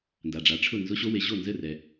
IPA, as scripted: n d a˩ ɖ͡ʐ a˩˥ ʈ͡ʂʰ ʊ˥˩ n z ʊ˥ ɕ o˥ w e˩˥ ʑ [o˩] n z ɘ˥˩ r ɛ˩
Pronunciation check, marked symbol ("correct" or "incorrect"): incorrect